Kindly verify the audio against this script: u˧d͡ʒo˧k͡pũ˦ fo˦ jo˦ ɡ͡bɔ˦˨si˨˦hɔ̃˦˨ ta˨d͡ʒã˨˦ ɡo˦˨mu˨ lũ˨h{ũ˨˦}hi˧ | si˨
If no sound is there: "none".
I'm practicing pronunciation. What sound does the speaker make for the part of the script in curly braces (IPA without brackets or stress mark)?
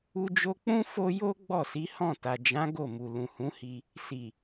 ũ˨˦